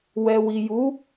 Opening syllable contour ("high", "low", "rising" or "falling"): low